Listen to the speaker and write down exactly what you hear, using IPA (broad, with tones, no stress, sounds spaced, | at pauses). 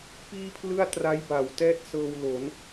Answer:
p iː˥˩ pʰ l ɯ˥˩ a̯ t r a˦˥ j b a˩˦ w t ɛː˥˩ t̚ s ɤː˧ w l o˩˦ n